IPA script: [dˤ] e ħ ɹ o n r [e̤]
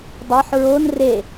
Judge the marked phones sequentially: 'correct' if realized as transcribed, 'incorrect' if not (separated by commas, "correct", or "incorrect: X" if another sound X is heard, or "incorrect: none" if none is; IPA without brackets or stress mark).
correct, incorrect: e